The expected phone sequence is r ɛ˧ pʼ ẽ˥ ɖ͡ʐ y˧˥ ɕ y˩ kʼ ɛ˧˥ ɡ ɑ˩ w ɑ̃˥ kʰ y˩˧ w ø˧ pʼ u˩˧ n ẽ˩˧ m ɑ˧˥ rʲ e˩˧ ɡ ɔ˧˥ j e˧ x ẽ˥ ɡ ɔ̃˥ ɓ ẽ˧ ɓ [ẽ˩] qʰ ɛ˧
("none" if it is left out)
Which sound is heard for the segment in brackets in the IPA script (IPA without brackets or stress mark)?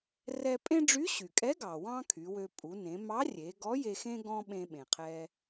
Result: ẽ˩